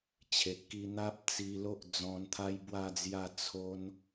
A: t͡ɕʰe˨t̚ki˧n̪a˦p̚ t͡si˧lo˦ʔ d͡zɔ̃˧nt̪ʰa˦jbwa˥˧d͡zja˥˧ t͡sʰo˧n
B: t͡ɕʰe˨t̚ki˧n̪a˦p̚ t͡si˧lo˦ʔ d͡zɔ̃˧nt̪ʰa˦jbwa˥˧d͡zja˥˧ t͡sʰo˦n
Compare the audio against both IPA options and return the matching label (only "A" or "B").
B